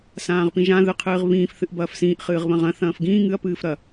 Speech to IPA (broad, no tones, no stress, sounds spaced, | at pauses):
s ãː ʁ p ĩ ʒ ã ð ɨ qʰ ɨː ʁ β ĩː f θ ɨ ʔ b ɐː f s ĩː ʔ χ ɨː ʁ β ɐ̃ ʁ ɐ̃ θ ɐ̃ː f ɡ ĩː ŋ ɨ ɐ̯ p ɨː f ɾ ɐ